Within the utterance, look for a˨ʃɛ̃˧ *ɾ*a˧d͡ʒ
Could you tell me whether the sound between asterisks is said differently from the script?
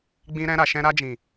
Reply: no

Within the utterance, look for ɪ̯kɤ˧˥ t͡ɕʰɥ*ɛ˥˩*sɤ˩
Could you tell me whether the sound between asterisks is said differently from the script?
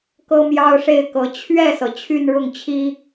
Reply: no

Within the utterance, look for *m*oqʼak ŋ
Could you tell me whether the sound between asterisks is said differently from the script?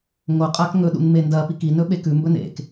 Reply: yes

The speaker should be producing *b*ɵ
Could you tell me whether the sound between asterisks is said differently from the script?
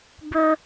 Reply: no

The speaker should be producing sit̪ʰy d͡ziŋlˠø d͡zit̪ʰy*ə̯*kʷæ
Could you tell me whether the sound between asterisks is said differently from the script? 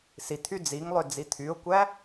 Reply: yes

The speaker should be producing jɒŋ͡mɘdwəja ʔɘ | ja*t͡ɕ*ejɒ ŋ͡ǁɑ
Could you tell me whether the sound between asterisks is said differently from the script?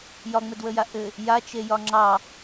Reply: yes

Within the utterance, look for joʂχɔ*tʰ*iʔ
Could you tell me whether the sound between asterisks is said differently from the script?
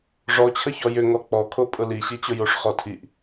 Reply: no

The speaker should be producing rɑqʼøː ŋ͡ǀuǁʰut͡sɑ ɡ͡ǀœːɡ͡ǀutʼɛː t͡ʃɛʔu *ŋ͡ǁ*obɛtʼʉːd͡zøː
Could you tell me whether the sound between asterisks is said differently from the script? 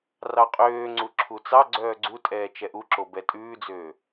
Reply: yes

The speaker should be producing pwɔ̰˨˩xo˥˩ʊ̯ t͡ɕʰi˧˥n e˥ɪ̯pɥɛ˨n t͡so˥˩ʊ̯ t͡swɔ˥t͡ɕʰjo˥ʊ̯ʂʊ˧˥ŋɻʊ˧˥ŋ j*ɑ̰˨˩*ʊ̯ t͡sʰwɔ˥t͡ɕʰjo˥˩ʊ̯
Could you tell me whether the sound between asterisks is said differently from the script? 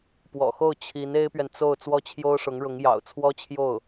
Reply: no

